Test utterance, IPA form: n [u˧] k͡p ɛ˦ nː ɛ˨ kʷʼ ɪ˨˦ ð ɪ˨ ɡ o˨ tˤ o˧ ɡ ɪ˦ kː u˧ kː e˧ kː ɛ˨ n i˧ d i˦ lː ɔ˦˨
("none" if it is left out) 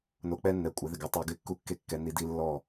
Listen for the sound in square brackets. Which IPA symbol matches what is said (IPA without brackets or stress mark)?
o˧